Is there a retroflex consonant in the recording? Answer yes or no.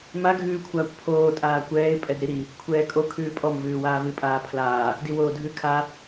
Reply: no